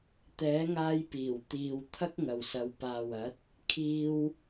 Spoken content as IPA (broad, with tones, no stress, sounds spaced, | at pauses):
t̪ ɛː˨˥ ŋ aː˧ j p iː˨˩ w t̪ iː˨ w t̪ʰ ɐ˥ k̚ ŋ ɐ˨ w s ɐ˨˧ w p aː˨ w ɐ˨˥ t̚ | kʰ iː˧ w